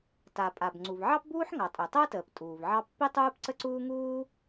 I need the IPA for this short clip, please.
ta˩pʼa˩b ŋ͡ǀu˩vʕɑ˥pbuː˥ħŋɑ˩ tʼø˩tˤəː˥təː˩p tʼuː˩vʕɑ˥ pːi˥tˤuː˥p ǀə˥ǀuː˥ ŋuː˥

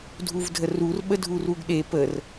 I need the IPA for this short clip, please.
dʱuvdʱərur ɓədʱuruɡɗe pər

